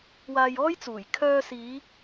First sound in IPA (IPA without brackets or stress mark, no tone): w